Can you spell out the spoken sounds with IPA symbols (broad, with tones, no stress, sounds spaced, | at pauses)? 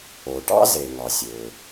o˩ ʈ ɑ̰˥ z e˩ ŋ ɑ˩ sʲ ø˩